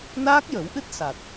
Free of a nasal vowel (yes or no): yes